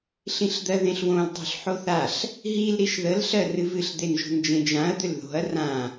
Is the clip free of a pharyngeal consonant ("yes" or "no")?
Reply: no